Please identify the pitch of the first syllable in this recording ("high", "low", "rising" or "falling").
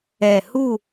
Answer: low